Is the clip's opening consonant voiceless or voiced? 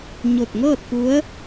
voiced